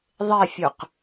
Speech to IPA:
ðˤ e fʲ u q

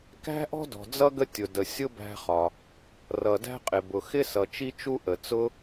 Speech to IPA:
k æ̤˥ ʔ ɔ̤˥ d ɔ̤˩ d͡z ʌ˥ ɡ ə˥ tʲ ʊ˩ d ə˩ sʲ ʊ˥ b æ̤˥ χ ɒ˩ | r ʌ˩ d æ̤˥ qʼ ɪ˩ b ʊ˩ x ɪ˥ s ʌ˩ t͡ʃ i˥ t͡ʃ u˥ ʔ ə˩ t͡s ʊ˥

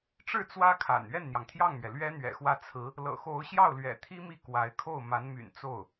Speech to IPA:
ʈ͡ʂ ɻ̩˥˩ t͡s w ä˥ kʰ a̰˨˩ n ɥ ɛ˥˩ n n̪ j ɑ˩ ŋ t̪ʰ j ɑ˥˩ ŋ m ɥ ɛ˩ l ɥ ɛ˥ n̪ ɥ ɛ̰˨˩ x w ä˥˩ t͡sʰ ɹ̩˧˥ | l ɤ̰˨˩ x o˧˥ ʊ̯ ɕ j ɑ˥˩ ʊ̯ l ɥ ɛ̰˨˩ t̪ʰ i˥ m i˥˩ k w a˧˥ ɪ̯ kʰ o˥˩ ʊ̯ m a˧˥ n m y̰˨˩ n t͡s o˥˩ ʊ̯

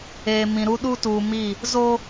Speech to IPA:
eː˨ m ĩ˨ ɾ u˦ ɗ u˦ t uː˨ m i˦˨ | z o˦

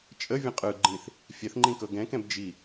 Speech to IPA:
t͡ʃʼ ə vʲ ə̃ qʼ ɯ ɡ͡ǃ ĩ θ | fʲ ɛ θ ŋ͡ǃ ĩ k ɤ ɡ ɛ̃ k ɛ̃ b d͡ʒ i

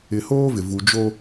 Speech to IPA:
ɪ˨ h oː˦ v ɪ˨ v u˨ d͡ʒ o˦

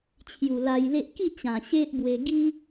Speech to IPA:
t͡ɕʰ j u˨˩ l a˧ j l e˦ ʔ k i˥˧ t͡ɕ ã˨˩ ɕ e˦ ʔ b w e˧ ɡ i˦

